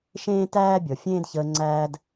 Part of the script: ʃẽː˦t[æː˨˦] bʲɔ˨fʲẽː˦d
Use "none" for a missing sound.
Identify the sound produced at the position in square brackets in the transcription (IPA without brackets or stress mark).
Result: æː˦